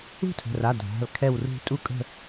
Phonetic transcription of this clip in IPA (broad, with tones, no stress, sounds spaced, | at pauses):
ṳ˥˧ tʰ ə̤˩˧˩ r a˩˧˩ dʱ a̤˩˧˩ l kʰ ɛ˧˩ w r ṳ˧˩ tʼ u˥˧ kʼ ə̤˥˧